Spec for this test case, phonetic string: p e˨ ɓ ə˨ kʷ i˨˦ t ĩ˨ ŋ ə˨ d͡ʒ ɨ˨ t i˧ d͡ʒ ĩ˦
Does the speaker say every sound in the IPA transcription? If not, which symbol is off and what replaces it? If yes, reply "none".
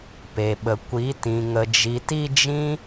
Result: ɨ˨ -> i˨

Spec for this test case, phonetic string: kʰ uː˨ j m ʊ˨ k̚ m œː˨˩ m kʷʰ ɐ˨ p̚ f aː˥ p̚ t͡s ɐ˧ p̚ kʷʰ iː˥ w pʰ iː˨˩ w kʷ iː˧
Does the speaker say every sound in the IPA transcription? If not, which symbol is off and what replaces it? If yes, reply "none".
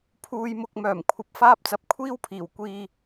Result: kʰ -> pʰ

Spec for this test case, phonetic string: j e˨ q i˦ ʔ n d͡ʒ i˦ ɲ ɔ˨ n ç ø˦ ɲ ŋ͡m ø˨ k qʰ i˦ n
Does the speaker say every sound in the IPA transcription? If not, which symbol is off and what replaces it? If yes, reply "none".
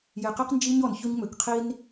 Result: ʔ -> q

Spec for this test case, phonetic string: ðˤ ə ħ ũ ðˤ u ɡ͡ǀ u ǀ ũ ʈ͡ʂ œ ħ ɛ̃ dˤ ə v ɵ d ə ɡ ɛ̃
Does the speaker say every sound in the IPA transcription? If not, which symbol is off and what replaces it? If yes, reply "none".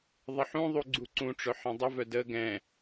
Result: ɵ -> œ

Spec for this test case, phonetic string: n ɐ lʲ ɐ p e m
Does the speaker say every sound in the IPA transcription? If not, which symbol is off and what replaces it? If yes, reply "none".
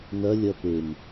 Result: none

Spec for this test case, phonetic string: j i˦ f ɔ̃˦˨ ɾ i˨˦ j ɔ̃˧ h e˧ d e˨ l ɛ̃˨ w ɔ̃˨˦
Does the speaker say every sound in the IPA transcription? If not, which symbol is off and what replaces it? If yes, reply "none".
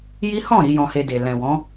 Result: f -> h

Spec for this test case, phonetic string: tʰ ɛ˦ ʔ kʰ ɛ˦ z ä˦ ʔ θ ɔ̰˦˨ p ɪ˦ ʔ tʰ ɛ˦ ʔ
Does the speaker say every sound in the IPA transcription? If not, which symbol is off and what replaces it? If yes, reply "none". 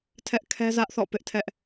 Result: none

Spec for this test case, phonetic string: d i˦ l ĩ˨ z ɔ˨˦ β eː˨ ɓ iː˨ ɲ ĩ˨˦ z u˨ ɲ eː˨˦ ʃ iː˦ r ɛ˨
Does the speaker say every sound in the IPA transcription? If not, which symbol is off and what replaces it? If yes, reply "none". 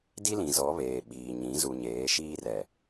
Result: none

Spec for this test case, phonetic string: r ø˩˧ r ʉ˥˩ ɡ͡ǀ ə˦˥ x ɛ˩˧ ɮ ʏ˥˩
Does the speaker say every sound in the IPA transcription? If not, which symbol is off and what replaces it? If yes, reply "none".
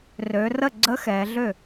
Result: ʉ˥˩ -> ə˥˩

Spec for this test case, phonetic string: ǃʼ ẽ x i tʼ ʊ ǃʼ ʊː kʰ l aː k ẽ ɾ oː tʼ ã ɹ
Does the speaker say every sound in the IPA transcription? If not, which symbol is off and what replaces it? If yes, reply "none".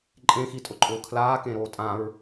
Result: none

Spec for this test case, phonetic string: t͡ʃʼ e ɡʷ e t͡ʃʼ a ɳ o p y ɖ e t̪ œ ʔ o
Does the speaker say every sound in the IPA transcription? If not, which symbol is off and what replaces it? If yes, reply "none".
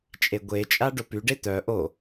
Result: ɳ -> ɖ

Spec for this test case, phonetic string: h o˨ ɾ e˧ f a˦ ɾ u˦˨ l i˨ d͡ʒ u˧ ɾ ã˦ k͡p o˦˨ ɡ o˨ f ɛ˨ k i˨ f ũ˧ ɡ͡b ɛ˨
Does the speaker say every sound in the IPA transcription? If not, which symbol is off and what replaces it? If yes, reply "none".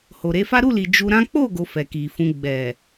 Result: none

